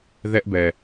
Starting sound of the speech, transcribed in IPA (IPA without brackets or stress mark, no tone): ð